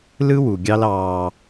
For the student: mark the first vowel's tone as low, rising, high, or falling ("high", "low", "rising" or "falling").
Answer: high